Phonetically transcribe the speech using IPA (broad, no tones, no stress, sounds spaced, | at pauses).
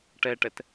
ʈ ɛ ʈ ɛ t